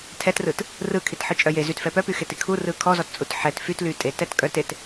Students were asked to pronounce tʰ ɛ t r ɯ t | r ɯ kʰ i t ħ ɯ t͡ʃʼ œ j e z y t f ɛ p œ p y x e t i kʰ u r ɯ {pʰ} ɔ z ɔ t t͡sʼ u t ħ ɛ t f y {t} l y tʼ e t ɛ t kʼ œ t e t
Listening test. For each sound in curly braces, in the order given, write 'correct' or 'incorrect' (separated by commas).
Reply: incorrect, correct